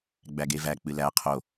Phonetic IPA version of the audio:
ɡ͡bæɡevæ k͡pɨlæ qʰo

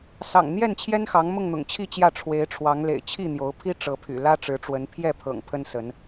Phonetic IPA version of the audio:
sɑ̰˨˩ŋn̪jɛ˥˨nt͡ɕʰjɛ˦nxɑ˨˦ŋ mʊ˥˨ŋn̪ʊ̰˨˩ŋt͡ɕʰi˥˨ t͡ɕjä˥˨ ʈ͡ʂʰwe˨˦ɪ̯ʈ͡ʂʰwɑ˨˦ŋlḛ˨˩ɪ̯ t͡ɕʰi˥˨n̪jo˨˦ʊ̯pʰi˦ ʈ͡ʂɤ˨˦pʰy̰˨˩ lä˦ʈ͡ʂɻ̩˨˦ʈ͡ʂwə˨˦n pʰjɛ˥˨pʰɤ̰˨˩ŋ pʰə˦nsə˨˦n

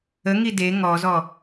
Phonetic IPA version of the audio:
əŋi de ŋɔzɔ

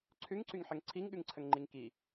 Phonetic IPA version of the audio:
ǀʰʉŋǀyŋħəŋ ǀʰiŋɠʉŋǀʰəŋŋ͡ǃiŋ ki

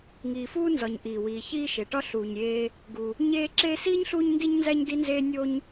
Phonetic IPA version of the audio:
ŋiː˩fuː˦nzɒ˩ɲ ʔiː˩wiː˩çiː˦ ʃe˩ʈɒ˦ ɬuː˩ɲɾʲeː˨ | ɡu˩ | ɲeː˦ ǁeː˦siː˥ɲɬuː˦ɲ ndi˦ɲnzæ˦ɲ di˥nzeː˥ nʲo˦ɲ

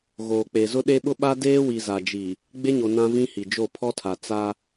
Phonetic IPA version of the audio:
ɣoː˨k͡pe˨zʊ˦ɗe˦ ɓʊ˦ɓa˦ deː˦wi˨za˨d͡ʒi˨ | ɡ͡be˦ɲo˨ nã˦vĩ˦hi˨d͡ʒo˦˨ pʰɔ˦tʰa˨ t͡sa˦

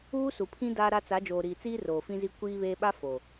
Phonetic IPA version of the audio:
uː˦su˨pʰĩ˦ daː˦ɾa˦ t͡sa˨˦d͡ʒoː˨ɾiː˨t͡siː˦ roː˨fĩ˦zi˦ kʷiː˦βeː˦ ɓa˦ fo˨

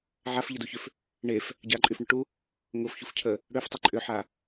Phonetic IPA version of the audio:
ʕafʎəduçʏf | ɳef | ɟaǃʼyfɳʏʈu | ŋʊfçufcʰə | ɽøftˤy ǃʼʏħa

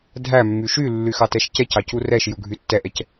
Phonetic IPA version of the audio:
dʱæmːy ʃy lːyxɑtɛʃcɛc ɑcurɛʃ juɡʱytːɛʔɛc

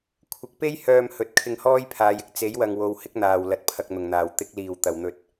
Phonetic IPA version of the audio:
kʷʰɪ˨˥k̚pe˥jhœː˧m hɵ˨˥t̚ kʰɪ˧ŋhɔː˥jpʰaː˨˧jɪ˧k̚ t͡se˨˥jwɐ˨ŋwo˨w hɪ˥k̚n̪aː˨w lɐ˨t̚pʰɐ˨k̚ n̪ʊ˨˩ŋn̪aː˨˩w t̪ɪ˨˥k̚ liː˨˩w t̪ɐ˨˩wn̪ɵ˨t̚

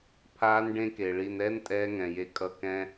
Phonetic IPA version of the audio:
pʰaː˦nɖẽ˦ke˨ ɭi˨nɛ˦n tʼɛː˦ŋɛ̃˨je˦kʼʌ˦˨ kɛ̃˦

